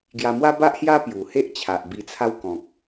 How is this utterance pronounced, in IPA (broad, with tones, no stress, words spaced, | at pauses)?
ɡja˧mwa˦ ba˦ʔhja˦ pju˨˩he˦ʔt͡ɕʰa˨ʔ bi˧t͡sʰa˦wkɔ̃˨k̚